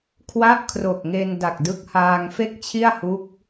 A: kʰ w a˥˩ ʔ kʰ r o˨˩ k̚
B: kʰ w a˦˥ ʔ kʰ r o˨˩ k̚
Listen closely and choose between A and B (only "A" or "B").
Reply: A